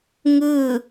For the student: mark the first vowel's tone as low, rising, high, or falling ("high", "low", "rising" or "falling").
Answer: falling